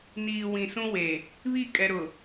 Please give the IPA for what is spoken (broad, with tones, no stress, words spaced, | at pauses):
niː˨ wĩ˨sũ˦we˨ | βi˦˨kʼɛ˨ɾʊ˨